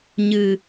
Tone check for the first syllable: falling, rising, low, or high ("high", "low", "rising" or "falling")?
low